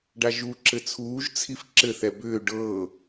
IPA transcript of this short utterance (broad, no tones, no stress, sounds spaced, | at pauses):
ɖ a ʒ u ǁ ɘ t͡sʰ uː ʒ t͡sʰ i f ǁ ɘ θ ɛ b ʏː ɖ ɤː